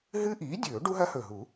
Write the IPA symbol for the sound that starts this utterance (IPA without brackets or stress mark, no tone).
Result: ɦ